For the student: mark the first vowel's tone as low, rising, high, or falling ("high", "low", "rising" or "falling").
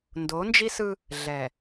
rising